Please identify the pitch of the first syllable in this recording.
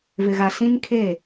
low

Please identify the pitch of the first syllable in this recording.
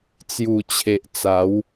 low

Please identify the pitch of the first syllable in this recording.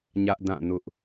high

